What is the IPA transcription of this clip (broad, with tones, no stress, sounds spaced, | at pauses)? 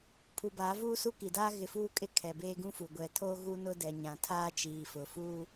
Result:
pʰ u˨ b aː˨˦ v uː˦ s u˦ k i˨ d aː˦ ɣ ɪ˨ f uː˦˨ kʼ ɪ˦ kʰ ɛ˨ b eː˦ ɡ ũ˦ f u˨ ɡʷ ɛ˨ tʰ o˦ ɣ u˦ n ʊ˦ d ɛ˨ ɲ ã˨ tʰ aː˦ t͡ʃ iː˨ f ʊ˨ f u˦